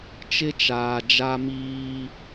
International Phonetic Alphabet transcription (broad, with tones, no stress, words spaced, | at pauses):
t͡ʃɪ˦t͡ʃaː˨d͡ʒa˦ miː˦